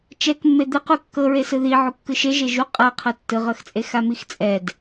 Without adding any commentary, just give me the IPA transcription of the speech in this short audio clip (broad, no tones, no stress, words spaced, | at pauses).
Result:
t͡ʃɛkmːe d̪ɯqu kːɤɹesɯ ði ʕukːɯʃeʒe ʒu qʼaqʰɤ tːɯʁɤxt͡sʼe xamixt͡sʼɛd